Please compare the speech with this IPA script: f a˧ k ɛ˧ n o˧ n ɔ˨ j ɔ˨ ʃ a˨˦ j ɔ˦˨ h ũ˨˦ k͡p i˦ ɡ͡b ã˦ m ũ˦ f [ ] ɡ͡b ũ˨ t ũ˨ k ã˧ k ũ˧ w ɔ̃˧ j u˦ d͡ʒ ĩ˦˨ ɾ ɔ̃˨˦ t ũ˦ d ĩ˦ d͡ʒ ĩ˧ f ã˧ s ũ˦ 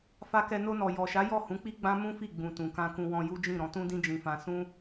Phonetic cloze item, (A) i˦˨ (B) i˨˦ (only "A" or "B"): A